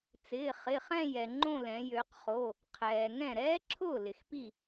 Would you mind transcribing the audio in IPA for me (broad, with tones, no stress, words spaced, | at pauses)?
t͡sɪː˩˧˩χɪ˩˧˩χɛ̃˥˧ jɛ˩ ŋ͡ǃõ˥˧lɛ̃˩˧ jø˩˧qχo˩˧˩ | qʰɛː˩ŋɛ̃˥˩ ɾɛː˦˥ǁʰʊː˥˩ lɪ˩xpi˥˩